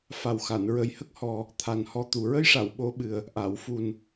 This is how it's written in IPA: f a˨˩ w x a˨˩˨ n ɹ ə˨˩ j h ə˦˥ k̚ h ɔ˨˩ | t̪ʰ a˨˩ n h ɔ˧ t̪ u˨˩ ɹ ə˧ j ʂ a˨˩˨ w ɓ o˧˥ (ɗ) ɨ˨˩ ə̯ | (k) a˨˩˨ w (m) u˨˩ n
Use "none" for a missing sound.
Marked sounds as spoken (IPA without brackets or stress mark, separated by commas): ɓ, ʔ, f